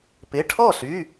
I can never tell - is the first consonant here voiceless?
yes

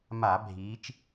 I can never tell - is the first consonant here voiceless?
no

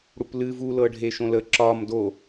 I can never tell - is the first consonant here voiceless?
no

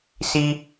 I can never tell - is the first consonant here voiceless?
yes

